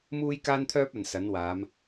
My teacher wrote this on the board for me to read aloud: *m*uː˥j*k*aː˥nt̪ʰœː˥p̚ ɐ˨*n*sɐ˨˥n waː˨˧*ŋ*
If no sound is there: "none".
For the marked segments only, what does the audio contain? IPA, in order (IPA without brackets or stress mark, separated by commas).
m, k, n, m